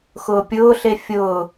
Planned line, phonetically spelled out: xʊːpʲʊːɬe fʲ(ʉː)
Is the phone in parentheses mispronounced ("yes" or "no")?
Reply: yes